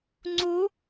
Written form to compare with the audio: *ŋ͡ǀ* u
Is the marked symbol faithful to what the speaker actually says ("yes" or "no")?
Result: yes